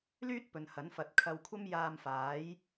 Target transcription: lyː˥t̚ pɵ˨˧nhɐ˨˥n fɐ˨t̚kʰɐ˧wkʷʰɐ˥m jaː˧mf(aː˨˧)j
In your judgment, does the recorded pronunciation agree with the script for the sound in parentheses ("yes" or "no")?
no